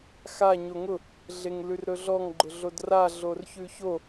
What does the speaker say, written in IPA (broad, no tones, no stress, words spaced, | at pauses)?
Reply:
xa ɲoŋʊ | ɮeŋlʉrɾɵɮɔŋ ɡ͡ǃʊɮodra ɮorçʉço